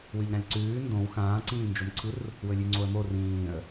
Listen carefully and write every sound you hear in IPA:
w ɨ ʎ ɾ ã lʲ ǀ ʉː n d õ w x ãː ǀ ĩː n d͡ʒ o m ǀʰ ɨ r | w ɵ lʲ ʉ ŋ͡ǀ o ə̯ m o r ĩː ə̯

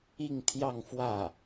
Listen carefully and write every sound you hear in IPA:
i˥˧ ŋ t̪ʰ j ɑ˥˧ ŋ f w ä˥˩

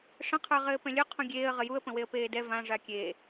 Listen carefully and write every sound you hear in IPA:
ʂ ə̃ qʰ ə˞ ʁ ɘː p ɛ̃ lʲ ɵ qʰ ũ ɡʲ eː ə̯ ʁ ə j u ə̯ p ə̃ w e ə̯ p eː d ɛ v ã ʐ a kʲ eː

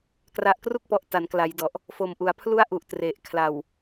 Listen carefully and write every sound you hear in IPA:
k r a˨˩ ʔ k r u˥˩ k̚ p ɔ˨˩ ʔ t a˩˦ n k l a˩˦ j d ɔ˨˩ ʔ | f o˨˩ m ʔ u˩˦ a̯ pʰ l u˥˩ a̯ ʔ u˨˩ ʔ t r e˨˩ ʔ kʰ l a˨˩ w

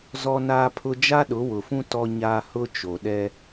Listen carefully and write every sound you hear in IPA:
z ɔ˦ n aː˦ pʰ ʊ˦ d͡ʒ a˦ ɗ ʊ˨˦ w ʊ˨ f ũ˦ t ɔ˦ ɲ aː˦ h ʊ˦ t͡ʃ o˨ ɗ ɛ˦

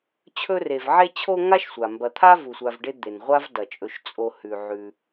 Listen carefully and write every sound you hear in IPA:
t͡ɕʰ ɵ˥ r e˨ v ʕ e˦ t͡ɕʰ o˦ ŋ a˥ ʃ sʷ a˩ m b ɐ˨ t̪ʰ a˥ v u˩ sʷ a˨ v ɖ e˦ d̪ e˩ n ʁʷ a˥ v d ɐ˩ t͡ʃʼ ɵ˨ ʃ t͡sʼ o˨ h ʉ˩ ʕ ʉ˨

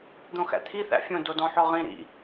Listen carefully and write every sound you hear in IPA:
d̪ õ x æ̰ t̪ʰ i θ æ̰ fʲ õ d o d ɔ̃ ħ ɔ ʁ ĩ ɾ ḭ

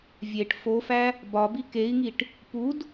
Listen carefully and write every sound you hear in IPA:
vʲ e ʈ f o f æ | b ɒ b i k e i̯ ŋ i ʈ | p u d

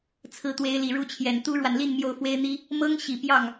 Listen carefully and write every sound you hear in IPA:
t͡sʰ ɹ̩˧˥ t̪ w e˧˥ ɪ̯ l i˨˩ ɻ u˥˩ t͡ɕʰ j ɛ˨˩ n t̪ u˥ ɻ w a˨ n l i˥˧ n m j o˥˩ ʊ̯ f w e˥ ɪ̯ n̪ i˥ | m ɤ˥ ŋ ɕ i˨˩ p j ɑ˥˩ ŋ

